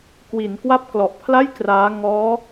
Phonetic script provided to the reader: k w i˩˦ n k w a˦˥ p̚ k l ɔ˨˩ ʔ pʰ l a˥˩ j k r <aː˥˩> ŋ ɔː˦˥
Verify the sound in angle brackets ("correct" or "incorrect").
incorrect